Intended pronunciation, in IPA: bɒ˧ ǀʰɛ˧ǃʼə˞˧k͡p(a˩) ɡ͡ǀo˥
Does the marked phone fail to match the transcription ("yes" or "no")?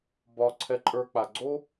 no